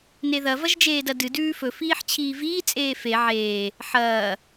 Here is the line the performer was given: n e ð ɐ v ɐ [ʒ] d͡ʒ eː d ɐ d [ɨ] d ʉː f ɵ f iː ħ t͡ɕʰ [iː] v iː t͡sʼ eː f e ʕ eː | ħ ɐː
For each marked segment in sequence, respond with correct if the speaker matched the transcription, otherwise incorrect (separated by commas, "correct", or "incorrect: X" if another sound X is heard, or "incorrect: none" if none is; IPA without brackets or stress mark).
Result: correct, correct, correct